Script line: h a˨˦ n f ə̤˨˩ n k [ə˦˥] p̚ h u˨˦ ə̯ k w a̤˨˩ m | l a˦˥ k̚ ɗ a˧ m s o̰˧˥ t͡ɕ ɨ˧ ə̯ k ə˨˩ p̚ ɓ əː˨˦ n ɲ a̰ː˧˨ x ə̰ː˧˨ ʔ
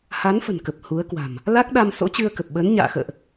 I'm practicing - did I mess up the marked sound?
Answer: yes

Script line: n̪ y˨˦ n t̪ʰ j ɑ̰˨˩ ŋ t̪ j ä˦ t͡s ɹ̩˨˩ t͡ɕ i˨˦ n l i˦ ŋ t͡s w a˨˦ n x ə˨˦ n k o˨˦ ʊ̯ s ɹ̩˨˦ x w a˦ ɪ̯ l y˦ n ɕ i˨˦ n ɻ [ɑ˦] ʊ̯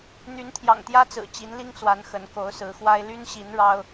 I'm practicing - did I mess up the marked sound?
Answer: no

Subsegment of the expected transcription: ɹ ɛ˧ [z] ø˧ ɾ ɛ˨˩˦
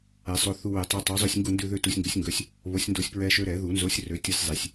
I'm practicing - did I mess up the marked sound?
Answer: yes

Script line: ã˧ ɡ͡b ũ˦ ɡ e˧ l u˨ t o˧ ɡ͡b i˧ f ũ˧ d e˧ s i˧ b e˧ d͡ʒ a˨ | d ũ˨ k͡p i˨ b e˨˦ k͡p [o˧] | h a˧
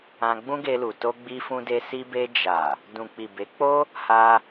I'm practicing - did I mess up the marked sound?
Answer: yes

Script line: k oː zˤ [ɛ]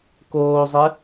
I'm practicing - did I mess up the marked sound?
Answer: no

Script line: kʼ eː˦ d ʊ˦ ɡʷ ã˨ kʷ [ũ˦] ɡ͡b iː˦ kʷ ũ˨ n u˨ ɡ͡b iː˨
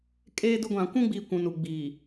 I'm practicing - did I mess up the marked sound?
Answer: no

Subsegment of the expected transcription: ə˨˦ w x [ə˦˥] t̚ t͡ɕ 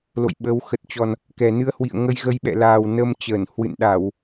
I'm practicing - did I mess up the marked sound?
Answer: yes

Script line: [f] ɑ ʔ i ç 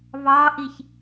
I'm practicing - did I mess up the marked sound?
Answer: yes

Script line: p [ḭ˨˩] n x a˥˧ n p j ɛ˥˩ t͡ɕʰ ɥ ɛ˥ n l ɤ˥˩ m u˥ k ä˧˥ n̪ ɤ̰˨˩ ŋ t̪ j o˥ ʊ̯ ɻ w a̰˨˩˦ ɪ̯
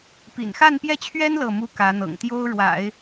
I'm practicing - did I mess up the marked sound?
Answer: no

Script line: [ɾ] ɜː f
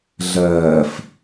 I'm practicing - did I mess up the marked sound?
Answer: yes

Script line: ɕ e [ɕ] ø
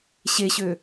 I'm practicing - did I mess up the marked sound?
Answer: no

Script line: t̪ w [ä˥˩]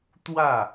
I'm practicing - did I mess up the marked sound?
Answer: no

